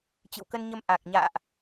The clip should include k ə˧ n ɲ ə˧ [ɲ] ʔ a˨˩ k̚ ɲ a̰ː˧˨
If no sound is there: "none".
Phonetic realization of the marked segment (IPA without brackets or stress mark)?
m